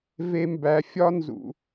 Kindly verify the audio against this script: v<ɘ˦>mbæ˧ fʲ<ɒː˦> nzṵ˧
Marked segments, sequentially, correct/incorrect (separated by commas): incorrect, incorrect